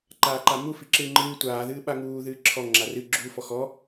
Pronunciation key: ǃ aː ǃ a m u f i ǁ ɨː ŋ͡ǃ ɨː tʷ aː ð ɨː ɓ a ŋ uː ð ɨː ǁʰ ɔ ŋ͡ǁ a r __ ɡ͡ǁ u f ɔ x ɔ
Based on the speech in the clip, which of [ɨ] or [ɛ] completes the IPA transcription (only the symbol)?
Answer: ɨ